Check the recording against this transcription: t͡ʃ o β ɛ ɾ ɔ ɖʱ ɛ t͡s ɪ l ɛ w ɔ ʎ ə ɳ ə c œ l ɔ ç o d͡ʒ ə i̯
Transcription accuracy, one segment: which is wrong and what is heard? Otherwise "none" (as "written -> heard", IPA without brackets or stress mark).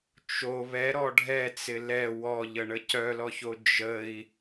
none